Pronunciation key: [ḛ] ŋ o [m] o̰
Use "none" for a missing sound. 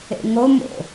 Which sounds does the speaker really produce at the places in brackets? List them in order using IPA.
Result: ḛ, m

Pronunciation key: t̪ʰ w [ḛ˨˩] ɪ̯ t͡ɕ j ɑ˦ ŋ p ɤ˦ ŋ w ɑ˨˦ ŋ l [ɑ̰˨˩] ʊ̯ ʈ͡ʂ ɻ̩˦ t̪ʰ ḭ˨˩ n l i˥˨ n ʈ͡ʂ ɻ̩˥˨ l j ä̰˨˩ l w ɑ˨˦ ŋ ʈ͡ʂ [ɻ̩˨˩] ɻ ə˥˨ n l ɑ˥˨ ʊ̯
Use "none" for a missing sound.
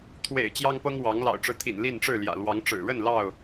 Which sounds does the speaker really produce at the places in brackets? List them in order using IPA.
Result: ḛ˨˩, ɑ̰˨˩, ɻ̩˨˩

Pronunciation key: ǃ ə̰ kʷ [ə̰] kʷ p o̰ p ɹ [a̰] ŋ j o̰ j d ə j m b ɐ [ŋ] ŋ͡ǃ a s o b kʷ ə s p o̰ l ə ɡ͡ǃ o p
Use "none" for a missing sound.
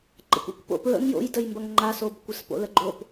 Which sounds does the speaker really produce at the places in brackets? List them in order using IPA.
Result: ə̰, ə̰, ŋ

